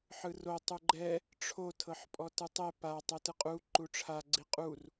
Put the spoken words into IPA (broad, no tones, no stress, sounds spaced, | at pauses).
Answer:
ħ ɯ r o tˤ u ɡ͡ǃ ɛ | ʈ͡ʂʰ o tʰ ɤ ħ pʼ ɔ t ɯ tˤ ɛ p a tˤ ɛ t ɯ qʼ u ǃ u ʈ͡ʂʰ a ɡ͡ǀ i qʼ u r